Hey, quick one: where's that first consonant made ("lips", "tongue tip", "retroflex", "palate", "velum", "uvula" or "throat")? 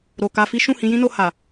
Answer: tongue tip